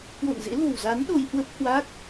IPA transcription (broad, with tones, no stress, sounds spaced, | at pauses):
k w o̰˧˨ n z ḛ˧˥ l o̤˨˩ w z a˨˦ n ɗ o˧ j h w ə˦˥ p̚ h w a˦˥ k̚